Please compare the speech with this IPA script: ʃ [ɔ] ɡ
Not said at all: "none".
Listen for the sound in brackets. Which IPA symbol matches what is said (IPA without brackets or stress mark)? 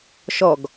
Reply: ɔ